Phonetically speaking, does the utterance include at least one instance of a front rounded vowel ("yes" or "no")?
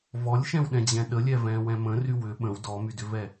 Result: yes